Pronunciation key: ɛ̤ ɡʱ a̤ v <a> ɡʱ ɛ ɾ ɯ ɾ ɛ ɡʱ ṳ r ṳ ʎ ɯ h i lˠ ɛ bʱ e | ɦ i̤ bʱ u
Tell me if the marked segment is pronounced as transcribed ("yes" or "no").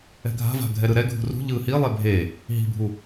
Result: no